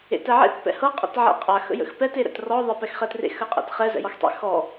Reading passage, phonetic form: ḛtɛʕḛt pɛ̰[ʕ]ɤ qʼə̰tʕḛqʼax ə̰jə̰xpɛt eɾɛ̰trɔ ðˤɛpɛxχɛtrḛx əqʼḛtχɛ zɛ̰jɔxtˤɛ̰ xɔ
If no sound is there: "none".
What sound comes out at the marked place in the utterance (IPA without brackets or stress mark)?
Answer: h